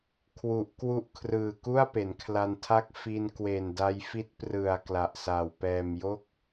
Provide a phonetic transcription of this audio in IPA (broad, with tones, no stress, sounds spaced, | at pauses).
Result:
kʰ w u˨˩ ʔ k w u˦˥ ʔ kʰ r ɯː˨˩ k u˥˩ a̯ p e˩˦ n kʰ l a˧ n tʰ a˥˩ k̚ f i˧ n k w e˨˩ n d a˧ j f i˦˥ t̚ p r ɯ˨˩ a̯ k l a˨˩ ʔ s a˨˩ w p ɛː˨˩ m j o˥˩ k̚